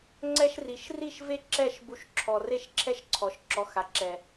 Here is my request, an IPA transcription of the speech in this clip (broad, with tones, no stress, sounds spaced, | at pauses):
ŋ͡ǀ ɛ˦ ʃ r i˨˦ ʃ r i˦˨ ʃ v e˦ ǁ ɛ˦˨ ʃ b u˧ ʃ ǁʰ ɔ˨ r e˦˨ ʃ ǁʰ ɛ˦ ʃ ǀʰ ɔ˨ ʃ ǁ ɔ˨ x a˨ ǁ ɛ˨